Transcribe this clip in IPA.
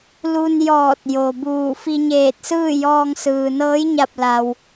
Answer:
l u˧ n j ɔː˧˩ t̚ j o˩ b uː˧˩ f i˧ ɲ eː˧˩ t̚ s ɯː˥˨ j ɔː˧ ŋ s ɯː˩ n ɤː˧˥ j ɲ a˧˩ p̚ l a˩ w

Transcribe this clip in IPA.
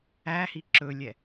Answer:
æ h i ǁ ɵ lʲ ɛ

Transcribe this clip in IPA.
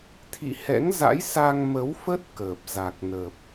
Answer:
t̪ʰ ḭ˧˨ h ɛ̰˧˥ ŋ z a̰˧˥ j s a˧ ŋ m ə˨˦ w f ə˦˥ t̚ k əː˨˩ p̚ z a˨˩ k̚ n ə˨˩ p̚

